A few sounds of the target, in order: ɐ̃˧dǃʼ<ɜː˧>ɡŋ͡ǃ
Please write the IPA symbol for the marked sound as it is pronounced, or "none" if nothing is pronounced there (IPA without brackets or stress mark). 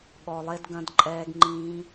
ɛː˧